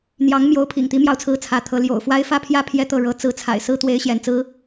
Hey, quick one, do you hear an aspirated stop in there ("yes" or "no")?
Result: yes